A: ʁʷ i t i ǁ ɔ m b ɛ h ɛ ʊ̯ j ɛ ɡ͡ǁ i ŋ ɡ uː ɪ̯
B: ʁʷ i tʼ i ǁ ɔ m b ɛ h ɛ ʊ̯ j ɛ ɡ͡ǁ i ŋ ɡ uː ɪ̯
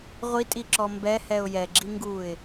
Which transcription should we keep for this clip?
B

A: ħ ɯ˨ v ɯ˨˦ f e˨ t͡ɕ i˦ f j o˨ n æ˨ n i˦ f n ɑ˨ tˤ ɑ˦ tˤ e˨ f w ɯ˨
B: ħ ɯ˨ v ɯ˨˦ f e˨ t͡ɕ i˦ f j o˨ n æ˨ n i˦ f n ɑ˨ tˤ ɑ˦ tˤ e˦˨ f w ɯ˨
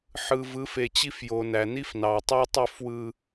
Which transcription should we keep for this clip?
B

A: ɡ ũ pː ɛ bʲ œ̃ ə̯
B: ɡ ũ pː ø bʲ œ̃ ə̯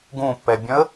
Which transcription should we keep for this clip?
A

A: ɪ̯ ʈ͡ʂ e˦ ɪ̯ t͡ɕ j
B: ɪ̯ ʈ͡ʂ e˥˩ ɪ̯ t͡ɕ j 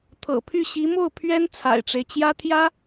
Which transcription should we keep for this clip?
A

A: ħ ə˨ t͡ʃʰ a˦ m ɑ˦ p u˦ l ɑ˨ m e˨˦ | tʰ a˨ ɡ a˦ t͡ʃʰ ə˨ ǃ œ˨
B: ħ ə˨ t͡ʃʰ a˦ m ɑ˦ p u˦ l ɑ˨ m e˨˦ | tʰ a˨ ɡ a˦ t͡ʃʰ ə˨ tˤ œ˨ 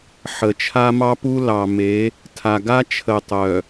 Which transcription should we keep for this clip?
B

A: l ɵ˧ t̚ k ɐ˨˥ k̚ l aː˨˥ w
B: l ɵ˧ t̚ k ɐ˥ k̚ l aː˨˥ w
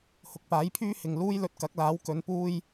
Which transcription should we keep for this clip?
A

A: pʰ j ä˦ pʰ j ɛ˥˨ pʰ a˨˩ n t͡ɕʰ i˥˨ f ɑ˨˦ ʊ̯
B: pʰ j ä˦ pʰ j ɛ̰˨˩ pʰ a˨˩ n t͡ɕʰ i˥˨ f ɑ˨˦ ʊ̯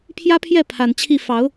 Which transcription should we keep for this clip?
A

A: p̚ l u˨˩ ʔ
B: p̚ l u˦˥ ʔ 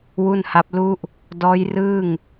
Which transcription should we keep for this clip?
B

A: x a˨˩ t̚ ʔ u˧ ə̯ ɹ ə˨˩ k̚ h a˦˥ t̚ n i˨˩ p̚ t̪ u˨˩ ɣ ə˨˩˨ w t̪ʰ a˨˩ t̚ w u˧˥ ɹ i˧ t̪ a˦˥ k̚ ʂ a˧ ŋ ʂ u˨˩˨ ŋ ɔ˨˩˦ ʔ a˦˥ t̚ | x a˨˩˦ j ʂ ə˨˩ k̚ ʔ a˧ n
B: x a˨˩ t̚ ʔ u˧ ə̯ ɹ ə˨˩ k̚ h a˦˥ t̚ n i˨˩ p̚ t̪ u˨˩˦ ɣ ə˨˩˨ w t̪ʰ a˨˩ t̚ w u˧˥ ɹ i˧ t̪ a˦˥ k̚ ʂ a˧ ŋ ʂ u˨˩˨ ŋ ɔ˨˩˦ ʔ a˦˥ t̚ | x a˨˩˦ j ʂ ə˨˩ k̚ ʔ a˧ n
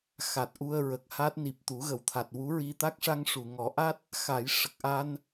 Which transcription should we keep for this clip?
B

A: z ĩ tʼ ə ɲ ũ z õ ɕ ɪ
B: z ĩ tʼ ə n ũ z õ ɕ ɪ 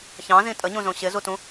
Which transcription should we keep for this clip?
A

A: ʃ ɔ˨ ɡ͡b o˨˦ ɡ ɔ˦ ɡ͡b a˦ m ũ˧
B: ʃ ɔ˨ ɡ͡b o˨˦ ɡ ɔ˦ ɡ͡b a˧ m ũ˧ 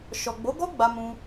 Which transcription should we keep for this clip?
B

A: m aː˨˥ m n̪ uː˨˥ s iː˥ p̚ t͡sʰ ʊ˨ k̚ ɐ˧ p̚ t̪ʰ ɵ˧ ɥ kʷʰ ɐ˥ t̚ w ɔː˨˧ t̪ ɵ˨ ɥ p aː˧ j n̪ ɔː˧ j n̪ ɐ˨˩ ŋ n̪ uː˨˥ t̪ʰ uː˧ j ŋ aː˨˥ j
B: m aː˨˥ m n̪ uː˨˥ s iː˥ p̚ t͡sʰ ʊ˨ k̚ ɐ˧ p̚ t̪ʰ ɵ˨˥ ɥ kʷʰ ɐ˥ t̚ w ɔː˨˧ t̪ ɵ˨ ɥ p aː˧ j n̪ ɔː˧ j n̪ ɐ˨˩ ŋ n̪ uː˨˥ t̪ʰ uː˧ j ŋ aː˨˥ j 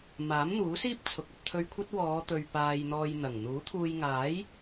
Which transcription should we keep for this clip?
A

